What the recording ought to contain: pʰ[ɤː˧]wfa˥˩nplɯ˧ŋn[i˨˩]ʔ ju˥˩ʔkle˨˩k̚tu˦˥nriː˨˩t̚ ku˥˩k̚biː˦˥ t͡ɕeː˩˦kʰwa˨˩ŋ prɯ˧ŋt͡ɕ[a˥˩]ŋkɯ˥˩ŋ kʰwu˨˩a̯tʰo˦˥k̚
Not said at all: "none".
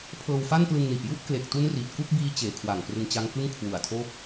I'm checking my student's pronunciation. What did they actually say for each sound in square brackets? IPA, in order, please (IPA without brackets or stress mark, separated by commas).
ɤː˧, i˨˩, a˦˥